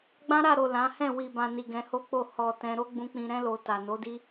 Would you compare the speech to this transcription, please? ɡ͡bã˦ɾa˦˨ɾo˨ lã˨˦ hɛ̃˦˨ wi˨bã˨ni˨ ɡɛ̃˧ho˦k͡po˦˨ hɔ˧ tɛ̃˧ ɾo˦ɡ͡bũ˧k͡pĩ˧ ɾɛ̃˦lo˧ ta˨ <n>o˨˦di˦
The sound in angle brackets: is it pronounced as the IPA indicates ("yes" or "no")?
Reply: yes